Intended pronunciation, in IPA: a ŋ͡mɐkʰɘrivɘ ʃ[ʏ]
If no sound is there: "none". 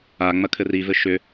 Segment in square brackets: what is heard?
ʏ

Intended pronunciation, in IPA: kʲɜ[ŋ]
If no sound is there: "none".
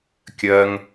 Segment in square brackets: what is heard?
ŋ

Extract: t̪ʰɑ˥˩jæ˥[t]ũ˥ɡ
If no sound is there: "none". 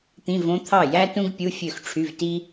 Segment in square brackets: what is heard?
t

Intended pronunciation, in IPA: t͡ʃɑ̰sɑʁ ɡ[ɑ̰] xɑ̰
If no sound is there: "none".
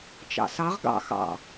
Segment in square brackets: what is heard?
ɑ̰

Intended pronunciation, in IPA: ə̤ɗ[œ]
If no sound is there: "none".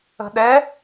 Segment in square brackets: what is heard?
ɛ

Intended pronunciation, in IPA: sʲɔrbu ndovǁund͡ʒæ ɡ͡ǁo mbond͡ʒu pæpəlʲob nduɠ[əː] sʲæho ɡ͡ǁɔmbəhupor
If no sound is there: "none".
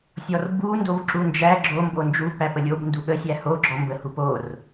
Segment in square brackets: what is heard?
ə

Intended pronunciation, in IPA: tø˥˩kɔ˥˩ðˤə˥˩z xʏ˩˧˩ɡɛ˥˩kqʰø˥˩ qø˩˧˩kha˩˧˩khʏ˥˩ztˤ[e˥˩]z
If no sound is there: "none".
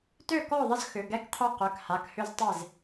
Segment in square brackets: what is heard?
e˥˩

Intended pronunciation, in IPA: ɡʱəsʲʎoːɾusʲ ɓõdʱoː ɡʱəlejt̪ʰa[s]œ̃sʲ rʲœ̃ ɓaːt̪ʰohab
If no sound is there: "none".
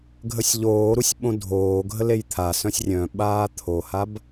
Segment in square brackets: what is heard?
s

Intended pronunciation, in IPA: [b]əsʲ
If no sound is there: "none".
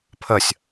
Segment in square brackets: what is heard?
pʰ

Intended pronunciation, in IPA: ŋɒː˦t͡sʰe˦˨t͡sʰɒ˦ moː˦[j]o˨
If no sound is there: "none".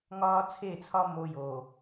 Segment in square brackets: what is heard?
j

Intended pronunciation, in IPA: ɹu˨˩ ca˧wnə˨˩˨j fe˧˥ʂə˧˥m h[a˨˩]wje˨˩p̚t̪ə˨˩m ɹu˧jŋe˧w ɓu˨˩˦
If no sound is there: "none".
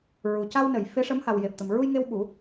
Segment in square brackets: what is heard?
a˨˩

